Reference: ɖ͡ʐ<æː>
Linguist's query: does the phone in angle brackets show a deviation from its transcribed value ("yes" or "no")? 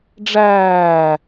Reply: no